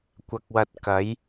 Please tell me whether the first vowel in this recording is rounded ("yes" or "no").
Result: no